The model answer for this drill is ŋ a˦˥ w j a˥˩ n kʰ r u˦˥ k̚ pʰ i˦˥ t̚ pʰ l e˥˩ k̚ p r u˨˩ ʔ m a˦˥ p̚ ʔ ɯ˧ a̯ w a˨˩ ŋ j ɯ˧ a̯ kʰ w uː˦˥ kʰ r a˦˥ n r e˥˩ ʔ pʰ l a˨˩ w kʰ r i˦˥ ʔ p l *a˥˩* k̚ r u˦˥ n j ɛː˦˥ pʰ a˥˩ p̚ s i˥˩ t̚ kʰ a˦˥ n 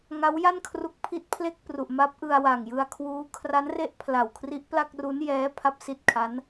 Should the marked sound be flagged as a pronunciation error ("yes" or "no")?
no